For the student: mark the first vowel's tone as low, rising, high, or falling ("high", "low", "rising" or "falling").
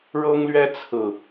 high